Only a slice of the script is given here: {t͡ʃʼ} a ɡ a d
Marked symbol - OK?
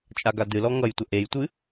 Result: yes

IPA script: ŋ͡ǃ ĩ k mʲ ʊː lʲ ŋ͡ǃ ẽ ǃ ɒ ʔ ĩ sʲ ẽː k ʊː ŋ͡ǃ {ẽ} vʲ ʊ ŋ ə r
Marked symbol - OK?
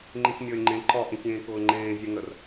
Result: no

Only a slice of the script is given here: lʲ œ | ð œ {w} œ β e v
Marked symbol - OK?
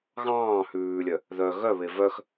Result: no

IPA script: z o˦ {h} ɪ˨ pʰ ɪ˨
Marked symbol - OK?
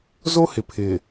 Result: yes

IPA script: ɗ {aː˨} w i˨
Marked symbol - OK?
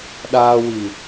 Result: yes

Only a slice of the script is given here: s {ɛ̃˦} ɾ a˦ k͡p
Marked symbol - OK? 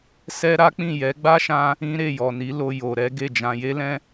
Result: no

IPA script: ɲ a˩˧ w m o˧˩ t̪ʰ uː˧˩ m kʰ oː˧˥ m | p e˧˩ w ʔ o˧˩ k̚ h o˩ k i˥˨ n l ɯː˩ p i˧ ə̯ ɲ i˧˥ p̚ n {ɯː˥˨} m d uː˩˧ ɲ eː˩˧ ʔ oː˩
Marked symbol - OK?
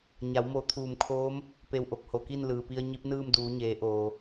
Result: yes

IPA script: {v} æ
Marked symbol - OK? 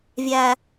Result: no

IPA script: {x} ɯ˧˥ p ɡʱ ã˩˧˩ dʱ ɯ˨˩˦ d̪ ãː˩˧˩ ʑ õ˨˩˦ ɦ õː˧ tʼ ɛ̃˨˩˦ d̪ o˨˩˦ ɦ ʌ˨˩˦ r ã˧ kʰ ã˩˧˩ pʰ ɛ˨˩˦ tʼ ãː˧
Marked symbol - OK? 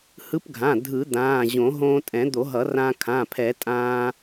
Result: no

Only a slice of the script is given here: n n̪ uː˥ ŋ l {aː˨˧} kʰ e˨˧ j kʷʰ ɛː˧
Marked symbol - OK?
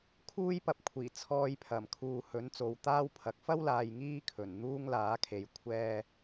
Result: no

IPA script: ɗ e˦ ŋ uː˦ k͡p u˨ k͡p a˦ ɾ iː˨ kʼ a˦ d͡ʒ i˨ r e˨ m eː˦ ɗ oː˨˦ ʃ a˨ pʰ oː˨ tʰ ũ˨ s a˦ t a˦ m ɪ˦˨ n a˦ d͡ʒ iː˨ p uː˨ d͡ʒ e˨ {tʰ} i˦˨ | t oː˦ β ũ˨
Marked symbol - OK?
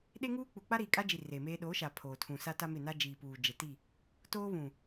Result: no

